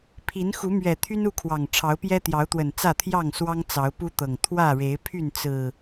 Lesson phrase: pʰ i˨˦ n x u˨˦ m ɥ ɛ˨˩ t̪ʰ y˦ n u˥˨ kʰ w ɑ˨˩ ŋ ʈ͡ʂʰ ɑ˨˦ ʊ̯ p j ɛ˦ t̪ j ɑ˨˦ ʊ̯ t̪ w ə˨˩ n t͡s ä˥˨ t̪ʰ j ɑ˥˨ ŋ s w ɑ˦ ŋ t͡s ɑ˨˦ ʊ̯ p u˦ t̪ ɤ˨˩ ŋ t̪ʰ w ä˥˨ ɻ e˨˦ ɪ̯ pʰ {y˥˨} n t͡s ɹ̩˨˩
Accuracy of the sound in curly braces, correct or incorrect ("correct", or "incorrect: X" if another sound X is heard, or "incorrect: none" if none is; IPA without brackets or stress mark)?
correct